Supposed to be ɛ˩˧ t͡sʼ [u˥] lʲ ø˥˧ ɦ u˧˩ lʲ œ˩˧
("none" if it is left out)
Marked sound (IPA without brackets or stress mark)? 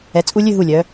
u˧